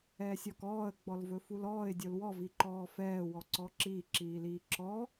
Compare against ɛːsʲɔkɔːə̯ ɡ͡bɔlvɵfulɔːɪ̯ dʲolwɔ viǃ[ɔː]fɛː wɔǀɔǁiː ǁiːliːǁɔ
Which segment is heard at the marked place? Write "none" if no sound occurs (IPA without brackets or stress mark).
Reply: ɔː